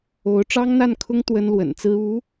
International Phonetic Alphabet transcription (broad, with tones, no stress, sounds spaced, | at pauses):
o˧˥ ʊ̯ ʈ͡ʂ ɑ˥ ŋ n̪ a˥˩ n kʰ ʊ˥ ŋ t̪ w ə˥ n l w ə̰˨˩ n t͡s ɹ̩˥ u˧˥